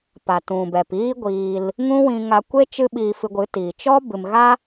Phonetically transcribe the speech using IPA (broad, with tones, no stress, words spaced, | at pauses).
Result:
pa˨tũ˨bɛ˨p iː˦ɡʷiː˧l | ŋũ˦wĩ˧ŋa˧kʷe˦ t͡ʃɨ˦ ɓiː˧fɨ˧ɡʷɨ˨˦tiː˨ t͡ʃɔ˦bɨ˨mɣa˦